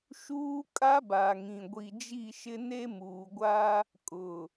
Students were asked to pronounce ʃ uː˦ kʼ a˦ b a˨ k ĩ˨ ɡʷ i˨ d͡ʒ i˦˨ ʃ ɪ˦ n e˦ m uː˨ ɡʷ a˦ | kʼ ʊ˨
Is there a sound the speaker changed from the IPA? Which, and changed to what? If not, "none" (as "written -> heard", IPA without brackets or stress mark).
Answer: k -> ŋ